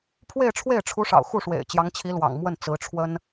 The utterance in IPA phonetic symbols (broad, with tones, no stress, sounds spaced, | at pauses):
pʰ w e˥˧ ɪ̯ ʈ͡ʂʰ w e˥˩ ɪ̯ ʈ͡ʂʰ u˧˥ ʂ ɑ̰˨˩ ʊ̯ x u˥˩ ʂ w ḛ˨˩ ɪ̯ t͡ɕ j ɑ˧˥ ŋ t͡ɕʰ i˧˥ l w ɑ̰˨˩ ŋ m w ə˥˩ n t͡s ɹ̩˧˥ ʈ͡ʂʰ w ə˥ n